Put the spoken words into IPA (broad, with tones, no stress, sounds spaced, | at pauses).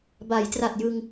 b a˩˦ j t r a˨˩ t̚ j ɯ˧ ŋ